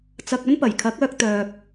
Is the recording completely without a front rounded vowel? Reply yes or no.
no